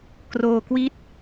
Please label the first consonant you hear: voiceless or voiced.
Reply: voiceless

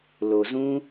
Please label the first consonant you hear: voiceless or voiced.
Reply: voiced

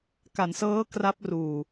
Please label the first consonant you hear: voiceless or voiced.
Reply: voiceless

